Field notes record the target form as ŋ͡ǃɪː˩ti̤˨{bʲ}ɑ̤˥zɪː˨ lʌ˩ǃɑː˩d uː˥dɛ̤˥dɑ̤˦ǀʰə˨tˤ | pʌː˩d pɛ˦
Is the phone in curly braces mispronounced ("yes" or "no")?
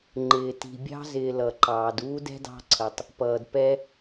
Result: no